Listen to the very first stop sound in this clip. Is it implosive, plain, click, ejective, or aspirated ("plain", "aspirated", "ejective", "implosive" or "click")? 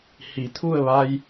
aspirated